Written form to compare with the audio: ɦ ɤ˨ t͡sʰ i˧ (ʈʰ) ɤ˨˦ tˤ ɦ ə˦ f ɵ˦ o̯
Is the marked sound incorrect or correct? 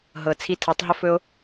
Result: incorrect